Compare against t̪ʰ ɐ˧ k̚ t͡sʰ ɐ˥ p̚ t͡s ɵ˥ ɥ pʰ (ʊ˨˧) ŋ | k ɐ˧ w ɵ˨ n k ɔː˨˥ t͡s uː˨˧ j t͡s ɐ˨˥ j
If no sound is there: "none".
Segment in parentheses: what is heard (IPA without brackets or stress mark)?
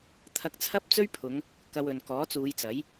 ʊ˨˧